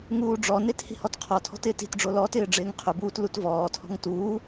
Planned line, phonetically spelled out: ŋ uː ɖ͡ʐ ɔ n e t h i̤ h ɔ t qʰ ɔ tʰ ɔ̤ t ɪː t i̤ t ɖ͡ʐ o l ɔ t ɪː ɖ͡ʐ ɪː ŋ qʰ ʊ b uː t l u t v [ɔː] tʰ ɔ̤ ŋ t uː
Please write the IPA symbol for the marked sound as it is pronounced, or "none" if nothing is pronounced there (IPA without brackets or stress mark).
ɔː